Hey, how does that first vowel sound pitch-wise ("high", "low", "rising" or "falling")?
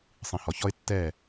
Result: low